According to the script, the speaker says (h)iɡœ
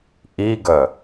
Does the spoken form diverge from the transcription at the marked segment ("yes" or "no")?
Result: yes